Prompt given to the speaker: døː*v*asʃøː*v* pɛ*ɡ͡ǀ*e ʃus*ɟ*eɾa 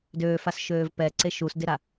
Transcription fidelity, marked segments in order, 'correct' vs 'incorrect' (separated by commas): incorrect, correct, incorrect, incorrect